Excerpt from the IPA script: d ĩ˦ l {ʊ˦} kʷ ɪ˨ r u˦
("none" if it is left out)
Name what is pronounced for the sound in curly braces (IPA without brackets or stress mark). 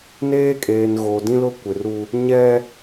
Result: ʊ˦